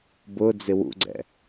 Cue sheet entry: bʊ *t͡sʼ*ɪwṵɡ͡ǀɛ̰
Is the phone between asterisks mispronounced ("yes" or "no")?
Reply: yes